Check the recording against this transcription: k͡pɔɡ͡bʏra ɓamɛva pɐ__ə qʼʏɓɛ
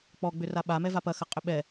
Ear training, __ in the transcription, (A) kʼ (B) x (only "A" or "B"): B